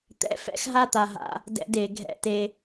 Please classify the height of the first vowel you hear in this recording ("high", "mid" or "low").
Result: mid